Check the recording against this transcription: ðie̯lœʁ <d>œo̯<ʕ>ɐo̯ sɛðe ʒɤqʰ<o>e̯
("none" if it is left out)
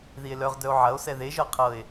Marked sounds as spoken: d, ʕ, ɤ

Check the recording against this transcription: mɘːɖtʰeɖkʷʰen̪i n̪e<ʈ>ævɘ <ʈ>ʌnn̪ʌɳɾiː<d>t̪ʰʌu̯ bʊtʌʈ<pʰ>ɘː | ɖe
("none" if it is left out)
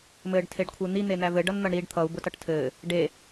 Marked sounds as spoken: n̪, ɖ, ɖ, tʰ

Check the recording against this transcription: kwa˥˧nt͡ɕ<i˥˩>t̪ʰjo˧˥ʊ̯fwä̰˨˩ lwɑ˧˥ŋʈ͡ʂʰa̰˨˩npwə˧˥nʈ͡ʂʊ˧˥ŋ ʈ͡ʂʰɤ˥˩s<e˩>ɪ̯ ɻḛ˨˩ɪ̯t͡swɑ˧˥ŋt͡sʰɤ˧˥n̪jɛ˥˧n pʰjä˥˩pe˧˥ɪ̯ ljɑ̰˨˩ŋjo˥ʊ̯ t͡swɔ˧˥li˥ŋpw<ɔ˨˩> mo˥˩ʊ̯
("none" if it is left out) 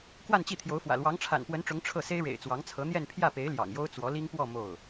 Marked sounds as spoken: i˥˩, e˥, ɔ˥˧

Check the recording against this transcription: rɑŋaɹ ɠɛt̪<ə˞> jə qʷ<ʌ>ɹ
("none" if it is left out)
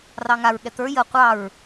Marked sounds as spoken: ə˞, ɑ

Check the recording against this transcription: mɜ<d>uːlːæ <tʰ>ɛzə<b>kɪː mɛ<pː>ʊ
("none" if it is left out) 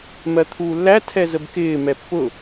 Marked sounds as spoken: t̪ʰ, tʰ, b, pː

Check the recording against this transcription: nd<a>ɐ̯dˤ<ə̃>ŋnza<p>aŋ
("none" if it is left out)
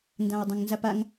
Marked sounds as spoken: ã, ə̃, p

